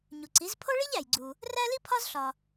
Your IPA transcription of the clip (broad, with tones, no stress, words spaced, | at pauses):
ɲu˩ǀi˩˥z pʰo˥ɭi˥ʎæ˩jɡ͡ǀu˩ | ræ˥li˥ pʰɒ˥z ɬɒ˩